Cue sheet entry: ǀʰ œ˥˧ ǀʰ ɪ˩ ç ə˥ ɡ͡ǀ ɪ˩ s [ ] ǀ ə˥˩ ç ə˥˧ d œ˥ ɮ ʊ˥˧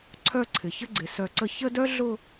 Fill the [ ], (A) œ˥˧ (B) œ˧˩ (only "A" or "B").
B